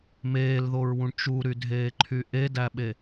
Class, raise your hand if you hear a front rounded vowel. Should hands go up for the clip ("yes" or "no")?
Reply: yes